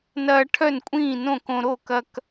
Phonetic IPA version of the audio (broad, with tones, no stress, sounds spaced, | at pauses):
n ɐː˦ ʈʰ œ˥˨ n kʷʼ ĩː˥˨ n õ˥˨ k õ˦ ɾ o˥˨ k ɐ˦ k